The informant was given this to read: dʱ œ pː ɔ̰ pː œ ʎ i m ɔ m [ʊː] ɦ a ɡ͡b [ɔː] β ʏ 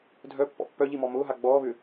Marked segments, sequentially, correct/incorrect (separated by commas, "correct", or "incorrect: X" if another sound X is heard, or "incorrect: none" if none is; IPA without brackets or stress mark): correct, correct